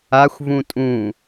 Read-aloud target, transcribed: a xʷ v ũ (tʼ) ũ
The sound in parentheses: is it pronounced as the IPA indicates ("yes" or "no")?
yes